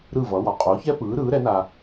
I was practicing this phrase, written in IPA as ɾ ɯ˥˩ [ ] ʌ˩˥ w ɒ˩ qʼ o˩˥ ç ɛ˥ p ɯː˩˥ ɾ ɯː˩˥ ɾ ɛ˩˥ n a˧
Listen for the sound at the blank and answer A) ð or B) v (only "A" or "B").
B